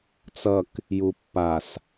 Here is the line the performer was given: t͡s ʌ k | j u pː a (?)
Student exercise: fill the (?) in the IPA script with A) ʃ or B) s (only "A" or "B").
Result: B